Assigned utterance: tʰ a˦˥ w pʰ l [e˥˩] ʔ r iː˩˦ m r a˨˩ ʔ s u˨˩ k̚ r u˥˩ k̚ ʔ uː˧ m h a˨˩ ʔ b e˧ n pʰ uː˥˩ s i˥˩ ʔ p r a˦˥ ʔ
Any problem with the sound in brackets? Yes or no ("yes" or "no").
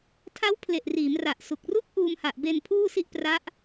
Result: yes